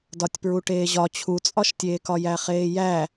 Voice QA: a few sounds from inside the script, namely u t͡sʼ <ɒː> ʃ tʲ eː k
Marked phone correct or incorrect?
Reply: incorrect